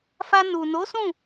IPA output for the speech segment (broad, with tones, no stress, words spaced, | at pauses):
fa˧ nu˨no˨˦sũ˦˨